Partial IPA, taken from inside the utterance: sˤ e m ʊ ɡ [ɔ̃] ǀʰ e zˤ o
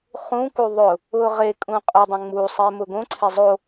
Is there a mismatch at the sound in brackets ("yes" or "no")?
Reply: yes